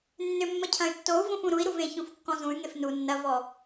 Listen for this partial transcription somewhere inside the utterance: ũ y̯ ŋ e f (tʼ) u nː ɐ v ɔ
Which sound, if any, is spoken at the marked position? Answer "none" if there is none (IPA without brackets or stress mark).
n